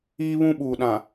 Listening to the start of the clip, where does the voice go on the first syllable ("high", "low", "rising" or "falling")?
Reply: high